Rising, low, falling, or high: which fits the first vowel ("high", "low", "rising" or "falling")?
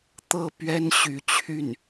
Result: falling